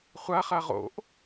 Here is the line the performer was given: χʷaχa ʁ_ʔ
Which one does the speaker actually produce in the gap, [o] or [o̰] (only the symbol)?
o̰